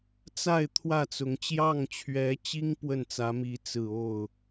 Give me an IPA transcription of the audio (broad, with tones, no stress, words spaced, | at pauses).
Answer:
t͡sa˥˧ɪ̯ t̪ʰwä˥˩t͡sʊ˧˥ŋ t͡ɕjɑ˥˩ŋt͡ɕʰɥɛ˧˥t͡ɕi˥ŋ pwə˥˩nt͡sä˧˥mi˧˥ t͡sɹ̩˨˩o˥˩ʊ̯